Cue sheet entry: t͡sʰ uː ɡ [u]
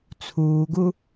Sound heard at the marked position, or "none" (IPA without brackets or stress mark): u